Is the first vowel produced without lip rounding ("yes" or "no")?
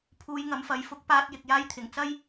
no